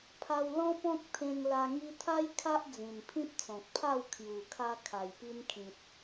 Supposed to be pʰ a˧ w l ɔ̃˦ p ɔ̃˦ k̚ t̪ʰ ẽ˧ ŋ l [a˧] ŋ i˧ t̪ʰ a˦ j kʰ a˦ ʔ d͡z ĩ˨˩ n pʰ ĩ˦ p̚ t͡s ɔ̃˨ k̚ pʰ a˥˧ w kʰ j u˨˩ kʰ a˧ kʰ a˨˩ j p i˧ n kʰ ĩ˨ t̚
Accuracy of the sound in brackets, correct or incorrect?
correct